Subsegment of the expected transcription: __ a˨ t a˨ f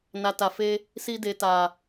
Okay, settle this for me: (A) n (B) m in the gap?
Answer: A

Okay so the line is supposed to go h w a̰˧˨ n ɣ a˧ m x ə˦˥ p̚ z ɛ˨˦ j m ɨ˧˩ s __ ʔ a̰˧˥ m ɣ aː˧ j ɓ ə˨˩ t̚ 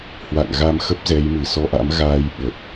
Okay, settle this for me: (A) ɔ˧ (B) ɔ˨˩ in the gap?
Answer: A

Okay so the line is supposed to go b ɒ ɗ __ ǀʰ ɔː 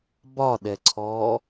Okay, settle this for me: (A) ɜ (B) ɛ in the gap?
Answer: B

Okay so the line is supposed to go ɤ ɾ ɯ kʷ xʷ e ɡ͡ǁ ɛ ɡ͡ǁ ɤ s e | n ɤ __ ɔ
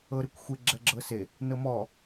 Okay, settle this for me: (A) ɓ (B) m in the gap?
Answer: B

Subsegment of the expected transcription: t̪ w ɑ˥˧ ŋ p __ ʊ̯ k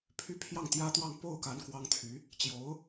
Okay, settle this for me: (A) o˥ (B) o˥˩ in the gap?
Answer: B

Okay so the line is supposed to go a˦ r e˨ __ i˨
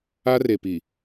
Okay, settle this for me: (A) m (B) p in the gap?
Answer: B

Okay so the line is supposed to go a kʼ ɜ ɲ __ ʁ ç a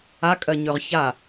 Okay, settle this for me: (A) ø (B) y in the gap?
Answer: A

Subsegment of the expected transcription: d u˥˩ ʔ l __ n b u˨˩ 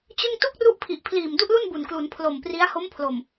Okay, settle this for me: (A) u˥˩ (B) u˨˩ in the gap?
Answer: A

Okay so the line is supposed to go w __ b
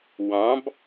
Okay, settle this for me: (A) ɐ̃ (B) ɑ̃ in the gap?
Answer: B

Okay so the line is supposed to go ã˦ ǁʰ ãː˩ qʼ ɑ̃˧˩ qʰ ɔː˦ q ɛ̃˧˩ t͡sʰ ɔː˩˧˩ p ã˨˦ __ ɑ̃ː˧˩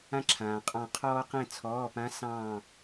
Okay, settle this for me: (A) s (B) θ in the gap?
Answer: A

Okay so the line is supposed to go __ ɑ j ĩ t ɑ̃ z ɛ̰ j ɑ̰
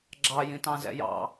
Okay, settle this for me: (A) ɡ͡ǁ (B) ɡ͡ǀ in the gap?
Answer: A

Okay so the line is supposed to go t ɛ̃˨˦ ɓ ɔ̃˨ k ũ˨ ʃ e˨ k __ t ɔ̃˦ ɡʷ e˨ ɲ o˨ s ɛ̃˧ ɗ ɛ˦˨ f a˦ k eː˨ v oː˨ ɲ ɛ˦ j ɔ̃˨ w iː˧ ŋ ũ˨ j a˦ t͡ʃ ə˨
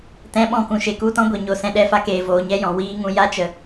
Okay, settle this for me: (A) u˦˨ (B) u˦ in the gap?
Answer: A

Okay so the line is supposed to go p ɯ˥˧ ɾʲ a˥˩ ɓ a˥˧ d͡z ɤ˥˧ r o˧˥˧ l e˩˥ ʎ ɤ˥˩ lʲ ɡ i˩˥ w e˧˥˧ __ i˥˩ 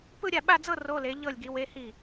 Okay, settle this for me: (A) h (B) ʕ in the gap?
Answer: A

